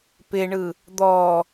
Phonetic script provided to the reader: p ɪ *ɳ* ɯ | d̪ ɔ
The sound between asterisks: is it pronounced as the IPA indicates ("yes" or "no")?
yes